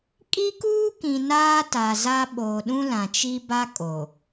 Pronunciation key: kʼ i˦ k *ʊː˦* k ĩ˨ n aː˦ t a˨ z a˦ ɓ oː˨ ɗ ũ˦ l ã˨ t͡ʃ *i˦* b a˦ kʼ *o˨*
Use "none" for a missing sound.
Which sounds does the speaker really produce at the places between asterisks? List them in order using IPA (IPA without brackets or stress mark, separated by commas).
uː˦, i˦, o˨